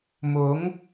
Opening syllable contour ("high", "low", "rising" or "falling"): rising